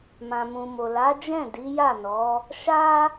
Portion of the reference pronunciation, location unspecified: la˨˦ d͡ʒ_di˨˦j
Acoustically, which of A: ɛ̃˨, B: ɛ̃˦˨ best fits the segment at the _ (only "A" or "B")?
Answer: B